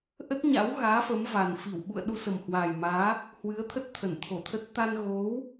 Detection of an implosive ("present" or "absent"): present